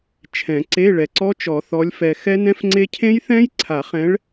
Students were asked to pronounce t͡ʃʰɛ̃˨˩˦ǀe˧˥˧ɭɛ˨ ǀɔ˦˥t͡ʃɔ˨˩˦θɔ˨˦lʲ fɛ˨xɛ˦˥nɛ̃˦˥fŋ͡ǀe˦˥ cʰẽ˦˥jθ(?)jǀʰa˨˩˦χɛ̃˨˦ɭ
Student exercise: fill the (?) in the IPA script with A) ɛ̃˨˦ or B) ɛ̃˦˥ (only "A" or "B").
B